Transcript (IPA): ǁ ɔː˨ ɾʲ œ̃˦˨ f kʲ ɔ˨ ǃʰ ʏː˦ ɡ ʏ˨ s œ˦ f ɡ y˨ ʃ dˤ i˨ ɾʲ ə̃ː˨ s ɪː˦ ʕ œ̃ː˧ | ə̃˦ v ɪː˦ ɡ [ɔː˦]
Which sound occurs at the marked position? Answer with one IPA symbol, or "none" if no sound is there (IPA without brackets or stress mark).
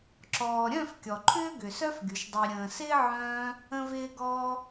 ɔː˦